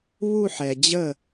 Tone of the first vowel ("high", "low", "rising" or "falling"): falling